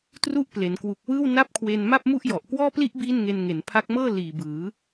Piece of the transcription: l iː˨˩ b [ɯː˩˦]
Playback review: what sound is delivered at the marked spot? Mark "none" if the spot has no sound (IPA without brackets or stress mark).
ɯː˩˦